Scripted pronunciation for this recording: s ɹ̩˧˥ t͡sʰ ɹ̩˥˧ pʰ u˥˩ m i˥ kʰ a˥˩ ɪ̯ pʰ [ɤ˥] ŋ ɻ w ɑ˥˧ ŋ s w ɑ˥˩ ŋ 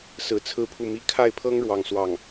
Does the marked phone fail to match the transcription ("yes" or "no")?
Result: no